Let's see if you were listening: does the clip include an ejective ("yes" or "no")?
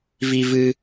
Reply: no